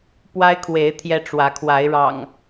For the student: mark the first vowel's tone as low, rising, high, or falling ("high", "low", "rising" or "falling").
high